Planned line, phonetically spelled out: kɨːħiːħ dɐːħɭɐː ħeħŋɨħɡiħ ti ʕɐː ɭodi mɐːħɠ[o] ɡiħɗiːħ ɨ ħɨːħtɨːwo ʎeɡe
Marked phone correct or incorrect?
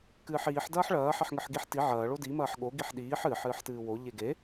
correct